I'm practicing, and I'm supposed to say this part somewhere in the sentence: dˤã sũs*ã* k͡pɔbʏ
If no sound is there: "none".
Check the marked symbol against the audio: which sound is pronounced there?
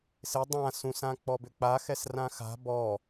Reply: ã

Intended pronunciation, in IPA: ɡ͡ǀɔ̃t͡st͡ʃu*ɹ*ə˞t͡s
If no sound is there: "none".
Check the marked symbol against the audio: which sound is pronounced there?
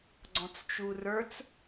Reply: r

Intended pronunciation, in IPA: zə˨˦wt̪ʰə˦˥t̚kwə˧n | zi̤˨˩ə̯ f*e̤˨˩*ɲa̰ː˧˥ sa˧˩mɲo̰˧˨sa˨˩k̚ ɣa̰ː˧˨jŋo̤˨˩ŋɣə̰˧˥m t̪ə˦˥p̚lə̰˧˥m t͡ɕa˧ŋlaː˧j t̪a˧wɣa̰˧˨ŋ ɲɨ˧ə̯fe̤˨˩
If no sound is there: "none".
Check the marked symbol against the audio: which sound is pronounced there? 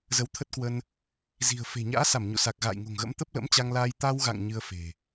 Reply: e̤˨˩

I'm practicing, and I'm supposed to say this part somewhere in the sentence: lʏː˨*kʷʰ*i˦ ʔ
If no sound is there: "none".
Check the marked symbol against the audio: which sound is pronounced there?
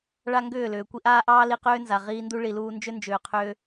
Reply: kʷ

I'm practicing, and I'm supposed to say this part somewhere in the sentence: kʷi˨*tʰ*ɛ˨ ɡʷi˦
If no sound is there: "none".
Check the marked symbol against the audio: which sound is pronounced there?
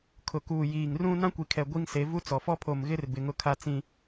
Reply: kʰ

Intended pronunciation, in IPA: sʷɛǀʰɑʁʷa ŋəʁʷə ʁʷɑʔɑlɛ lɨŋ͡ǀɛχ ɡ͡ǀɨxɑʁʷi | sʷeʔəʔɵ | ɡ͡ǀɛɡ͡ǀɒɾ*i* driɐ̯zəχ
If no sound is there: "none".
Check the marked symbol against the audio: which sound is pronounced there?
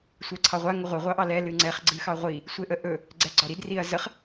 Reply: i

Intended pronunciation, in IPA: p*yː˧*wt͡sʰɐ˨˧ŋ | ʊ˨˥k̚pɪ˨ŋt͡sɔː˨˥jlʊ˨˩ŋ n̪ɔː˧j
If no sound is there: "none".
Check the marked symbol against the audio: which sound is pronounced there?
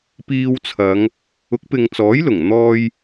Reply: iː˧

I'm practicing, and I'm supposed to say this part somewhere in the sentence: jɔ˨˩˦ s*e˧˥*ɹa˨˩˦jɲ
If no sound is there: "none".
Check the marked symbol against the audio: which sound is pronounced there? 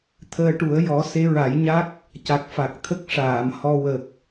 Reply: e˧˥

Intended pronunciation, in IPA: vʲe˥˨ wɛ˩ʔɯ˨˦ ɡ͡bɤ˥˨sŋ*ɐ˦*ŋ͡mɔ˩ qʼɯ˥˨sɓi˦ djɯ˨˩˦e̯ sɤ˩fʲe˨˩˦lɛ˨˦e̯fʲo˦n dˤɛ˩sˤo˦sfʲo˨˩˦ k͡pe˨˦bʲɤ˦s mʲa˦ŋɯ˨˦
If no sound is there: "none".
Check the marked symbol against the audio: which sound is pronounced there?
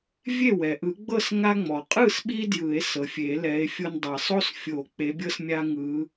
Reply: a˦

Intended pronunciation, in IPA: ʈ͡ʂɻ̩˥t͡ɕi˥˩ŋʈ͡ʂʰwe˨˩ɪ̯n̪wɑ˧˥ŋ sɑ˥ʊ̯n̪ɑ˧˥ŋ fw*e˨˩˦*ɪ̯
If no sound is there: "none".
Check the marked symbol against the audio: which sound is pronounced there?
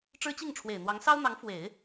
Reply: e˨˩˦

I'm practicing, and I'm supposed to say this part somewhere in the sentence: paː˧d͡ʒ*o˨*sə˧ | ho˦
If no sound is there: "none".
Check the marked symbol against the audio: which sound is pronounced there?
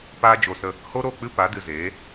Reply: o˨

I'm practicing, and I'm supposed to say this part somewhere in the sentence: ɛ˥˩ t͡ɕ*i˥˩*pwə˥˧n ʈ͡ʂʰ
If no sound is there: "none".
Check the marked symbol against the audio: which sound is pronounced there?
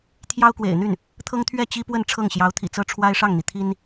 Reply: i˥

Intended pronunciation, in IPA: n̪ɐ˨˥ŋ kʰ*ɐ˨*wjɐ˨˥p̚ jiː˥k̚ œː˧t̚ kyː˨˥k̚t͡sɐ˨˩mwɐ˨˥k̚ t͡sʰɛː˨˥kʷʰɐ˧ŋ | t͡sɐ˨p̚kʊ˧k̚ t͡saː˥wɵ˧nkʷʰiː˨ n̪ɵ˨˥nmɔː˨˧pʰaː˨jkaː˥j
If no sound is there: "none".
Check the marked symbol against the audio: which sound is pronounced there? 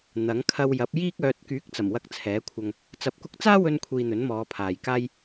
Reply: ɐ˧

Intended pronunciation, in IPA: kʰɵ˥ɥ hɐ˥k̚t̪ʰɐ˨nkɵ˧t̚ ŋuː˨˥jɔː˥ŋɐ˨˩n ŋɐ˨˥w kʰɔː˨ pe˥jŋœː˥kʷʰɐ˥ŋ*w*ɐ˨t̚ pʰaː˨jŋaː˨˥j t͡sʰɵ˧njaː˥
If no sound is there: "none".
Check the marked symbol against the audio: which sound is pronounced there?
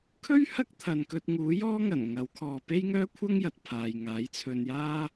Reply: j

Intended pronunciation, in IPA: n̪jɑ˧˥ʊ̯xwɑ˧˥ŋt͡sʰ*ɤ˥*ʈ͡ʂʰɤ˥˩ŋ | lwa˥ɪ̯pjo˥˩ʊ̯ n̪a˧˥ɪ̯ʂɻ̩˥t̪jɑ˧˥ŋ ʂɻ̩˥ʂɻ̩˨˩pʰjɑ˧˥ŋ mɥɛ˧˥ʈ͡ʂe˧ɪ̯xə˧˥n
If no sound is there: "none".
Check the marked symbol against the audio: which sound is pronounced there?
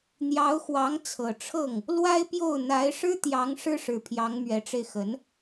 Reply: ɤ˨˩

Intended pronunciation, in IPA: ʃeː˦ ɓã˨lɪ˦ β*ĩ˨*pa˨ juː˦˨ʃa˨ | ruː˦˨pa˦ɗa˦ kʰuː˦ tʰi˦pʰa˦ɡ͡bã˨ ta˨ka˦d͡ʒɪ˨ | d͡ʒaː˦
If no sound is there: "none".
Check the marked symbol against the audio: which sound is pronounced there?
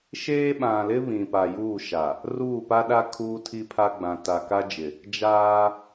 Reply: ĩ˨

